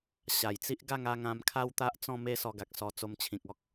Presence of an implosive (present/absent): absent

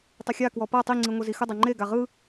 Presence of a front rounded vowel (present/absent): absent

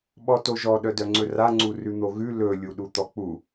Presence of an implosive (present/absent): present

